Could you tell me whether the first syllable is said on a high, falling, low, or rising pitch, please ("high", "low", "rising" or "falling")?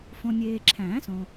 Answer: low